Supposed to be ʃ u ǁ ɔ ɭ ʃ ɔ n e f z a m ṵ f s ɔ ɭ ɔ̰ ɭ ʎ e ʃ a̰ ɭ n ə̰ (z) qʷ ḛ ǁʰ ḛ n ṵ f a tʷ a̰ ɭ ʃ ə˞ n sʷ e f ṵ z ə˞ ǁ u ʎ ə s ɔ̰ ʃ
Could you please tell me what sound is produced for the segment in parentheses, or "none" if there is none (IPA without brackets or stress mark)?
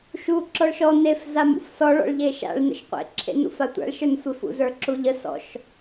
ʃ